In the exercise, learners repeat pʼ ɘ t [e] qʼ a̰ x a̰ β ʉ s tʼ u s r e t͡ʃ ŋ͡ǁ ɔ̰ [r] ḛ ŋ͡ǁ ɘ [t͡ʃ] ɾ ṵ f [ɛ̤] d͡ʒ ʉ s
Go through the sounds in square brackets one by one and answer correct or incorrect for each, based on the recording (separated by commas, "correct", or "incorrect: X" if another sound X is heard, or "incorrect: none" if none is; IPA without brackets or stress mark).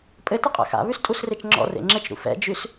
incorrect: ɘ, correct, correct, incorrect: ɛ̰